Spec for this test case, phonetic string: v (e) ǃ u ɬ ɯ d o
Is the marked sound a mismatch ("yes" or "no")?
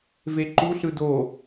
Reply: no